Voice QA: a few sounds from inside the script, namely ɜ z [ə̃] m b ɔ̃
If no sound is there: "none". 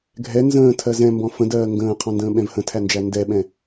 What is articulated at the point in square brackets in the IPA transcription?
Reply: ɛ̃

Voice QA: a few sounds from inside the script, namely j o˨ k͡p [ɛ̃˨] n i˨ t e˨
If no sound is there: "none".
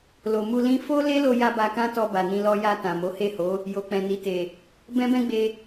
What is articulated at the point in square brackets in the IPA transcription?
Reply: ɛ̃˨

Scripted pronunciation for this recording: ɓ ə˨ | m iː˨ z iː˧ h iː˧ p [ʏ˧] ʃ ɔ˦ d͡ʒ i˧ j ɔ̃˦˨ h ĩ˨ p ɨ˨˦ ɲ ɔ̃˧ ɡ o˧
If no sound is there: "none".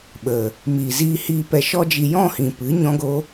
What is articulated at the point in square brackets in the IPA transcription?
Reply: ɛ˧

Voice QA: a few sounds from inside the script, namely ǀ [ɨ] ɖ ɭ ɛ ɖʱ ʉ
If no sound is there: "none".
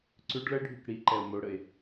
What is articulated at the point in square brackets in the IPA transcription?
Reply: ʉ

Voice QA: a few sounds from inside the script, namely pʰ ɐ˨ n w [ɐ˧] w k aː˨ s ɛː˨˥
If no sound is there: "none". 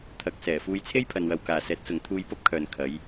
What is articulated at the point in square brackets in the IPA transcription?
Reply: ɐ˧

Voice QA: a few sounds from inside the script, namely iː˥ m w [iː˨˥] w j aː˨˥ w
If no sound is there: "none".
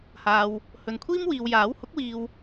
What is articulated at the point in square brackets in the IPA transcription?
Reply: iː˨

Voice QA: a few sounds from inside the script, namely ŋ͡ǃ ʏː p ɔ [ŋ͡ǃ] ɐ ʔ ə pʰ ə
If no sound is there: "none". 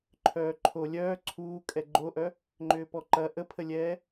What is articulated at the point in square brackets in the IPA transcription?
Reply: ǃ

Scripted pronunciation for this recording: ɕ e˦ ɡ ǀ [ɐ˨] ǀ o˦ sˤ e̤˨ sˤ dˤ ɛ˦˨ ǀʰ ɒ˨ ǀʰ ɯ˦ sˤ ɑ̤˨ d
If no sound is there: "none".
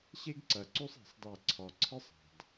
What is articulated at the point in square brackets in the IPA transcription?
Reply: ɐ˨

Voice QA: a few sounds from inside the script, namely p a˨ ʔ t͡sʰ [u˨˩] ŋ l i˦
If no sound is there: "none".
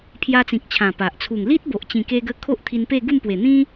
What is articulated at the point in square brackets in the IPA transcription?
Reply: u˨˩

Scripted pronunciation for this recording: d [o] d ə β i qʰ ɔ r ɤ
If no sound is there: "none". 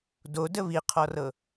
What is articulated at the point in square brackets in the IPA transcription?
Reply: o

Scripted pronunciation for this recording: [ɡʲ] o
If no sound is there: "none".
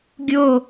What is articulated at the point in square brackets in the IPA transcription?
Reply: ɡʲ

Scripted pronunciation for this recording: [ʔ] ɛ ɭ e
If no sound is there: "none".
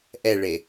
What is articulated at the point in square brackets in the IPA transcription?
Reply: ʔ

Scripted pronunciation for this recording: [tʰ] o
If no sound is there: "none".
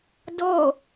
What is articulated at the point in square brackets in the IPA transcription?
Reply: d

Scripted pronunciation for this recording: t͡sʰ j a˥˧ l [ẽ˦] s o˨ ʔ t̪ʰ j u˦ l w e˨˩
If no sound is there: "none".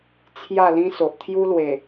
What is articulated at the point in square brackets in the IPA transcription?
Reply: ĩ˦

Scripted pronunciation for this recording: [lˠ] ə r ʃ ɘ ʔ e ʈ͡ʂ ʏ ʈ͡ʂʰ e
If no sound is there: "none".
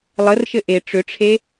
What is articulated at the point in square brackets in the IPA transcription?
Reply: lˠ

